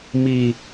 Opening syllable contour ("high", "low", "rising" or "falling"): low